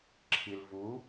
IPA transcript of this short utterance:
ǁʰ i l v u

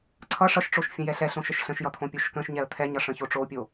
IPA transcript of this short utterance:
ǀʰ ʌ ʂ ʌ ʃ ʈ͡ʂ o ʃ fʲ ə̃ j ɛ ɬ ɛ ɬ õ ʃ ə ʃ ɬ ə̃ ʃ j ʌ t̪ʰ õ pʲ o ʃ k ə̃ ʃ ɲ ɛ ə̯ t̪ʰ ɛ ɲ ʌ ʂ ə̃ ç o ʈ͡ʂ o pʲ o

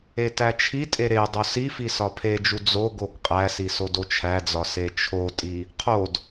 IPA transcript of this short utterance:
e t æ t͡ʃʰ i tʼ e ɾ e dˤ o s i f i s ɒ pʰ e d͡ʒ u d͡z o ɡ o ɡ qʼ æ s i s o d o t͡ʃʰ æ d͡z ɒ s e t͡ʃʰ o tʼ i | qʰ o d

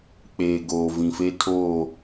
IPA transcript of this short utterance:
k͡p eː˨ ɡ oː˨ v ĩ˨ f e˦ tʰ oː˦˨

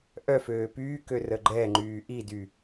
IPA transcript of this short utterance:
ʔ œ f øː p yː k ø r ə ɡ͡ǃ ɛ ŋ͡ǃ yː ʔ i d y

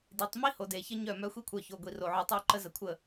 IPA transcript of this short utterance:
d i˨˦ tˤ m i˦ h o˨ d e˨ ç ə˦ ɲ œ˦˨ m œ˦ xʷ i˦ kʷʰ œ˨ ç o˨ ɡʷ i˨ r o˨ ʕ œ˨ tˤ o˦˨ ǃ ə˦ z ə˨ kʷʰ ə˦˨

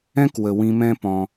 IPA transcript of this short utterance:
ɛ̃˦ k w ə˨ w ĩ˧ m ɛ̃˦ p ɔ̃˧

